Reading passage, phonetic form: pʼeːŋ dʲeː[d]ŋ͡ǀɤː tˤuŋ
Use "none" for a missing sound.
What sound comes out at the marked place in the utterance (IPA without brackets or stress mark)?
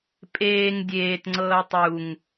t